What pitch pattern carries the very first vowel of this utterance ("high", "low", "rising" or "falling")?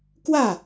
falling